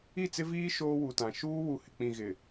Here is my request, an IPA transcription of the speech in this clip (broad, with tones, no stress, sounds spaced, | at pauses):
i˦˨ t͡s ɪ˦ v iː˦ ʃ oː˦ w u˨ t ã˨ ʃ uː˦ w u˨ h ɪ˨ k͡p ĩ˨ ɣ ɪ˨